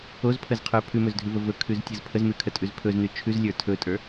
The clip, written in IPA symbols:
o z pʰ ə z qʰ ə˞ pʰ ʉ m ɵ z dʱ ʉ v ə v ɵ kʰ ʉ z tʲ ɯ z pʰ ə z m ʉ kʰ ə tʼ ʉ z pʰ ɵ z n ʉ t͡ʃʰ ʉ z lʲ ə˞ tʰ ɵ tʼ ə˞

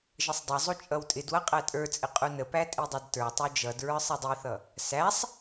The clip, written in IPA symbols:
ʒ ə sˤ dˤ ʌ zˤ u t͡ʃʼ ʌ w tʼ ɪ d w ʌ qʼ æ tʼ ə˞ t͡sʼ ɪ qʼ u n ə p æ tʼ i dˤ ʌ d t ə˞ tˤ u d͡ʒ ʌ d ɹ ə˞ sˤ ɪ dˤ i θ ʌ | s æ sˤ

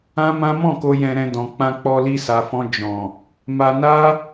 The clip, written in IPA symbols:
ã˦ m ã˦ m ɔ̃˦˨ k o˧ j ɛ̃˧ ɾ ɛ̃˧ d ɔ̃˨ k͡p ã˧ k͡p ɔ˧ l i˧ s a˨ f ɔ̃˧ d͡ʒ ɔ̃˨ | m a˧ n a˦

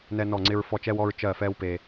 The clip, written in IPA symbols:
n ɛ˧ n ɔ˧˩ ŋ͡ǀ ɪ˧ ɹ f ɔ˧˩ t͡ʃ ɛ˧ w ɔ˧ ɹ t͡ʃ ɜ˧˩ f ɛ˧ w p e˧

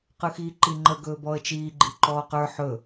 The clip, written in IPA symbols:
q ɯ x iː ǃ i ŋ͡ǃ ə ɡ ɵː b ɔ ə̯ t͡ʃ iː ɡ͡ǃ i ǃ ɔː q ə˞ ħ ɵ

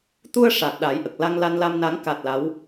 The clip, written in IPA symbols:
t̪ u˧ ə̯ ʂ a˨˩ t̚ ɗ a˨˩˦ j ʔ ə˨˩ k̚ l a˧ ŋ l a˧ n l a˧ m n a˨˩˦ ŋ k a˨˩ t̚ l a˧˥ w

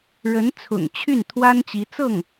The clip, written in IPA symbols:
ɻ ə˧˥ n t͡sʰ ʊ̰˨˩ ŋ t͡ɕʰ y˥˩ n t̪ʰ w a˥ n t͡ɕ i˧˥ t͡s ɤ˥˩ ŋ

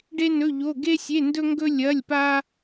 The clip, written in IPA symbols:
ɖ e˥ n ɵ˧˥˧ ʎ o˧˥˧ ɡ e˥ sʲ e˧˥˧ n d ɵ˥ ŋ ɡ ɵ˥ lʲ ɐ˧˥˧ lʲ p a˥

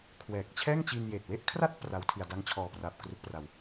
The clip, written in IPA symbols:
kʰ w ɛː˨˩ k̚ t͡ɕʰ ɛː˥˩ ŋ t͡ɕ i˧ n j eː˨˩ t̚ w e˥˩ ʔ kʰ r a˥˩ t̚ p r a˦˥ w tʰ i˧ a̯ d a˦˥ ŋ t͡ɕʰ ɔː˨˩ p r aː˨˩ p̚ k r u˦˥ k̚ p r a˧ w

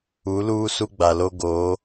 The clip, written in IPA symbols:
u˨˦ l uː˦ s u˦ ɡ͡b a˨ l o˦ ɡ oː˨˦

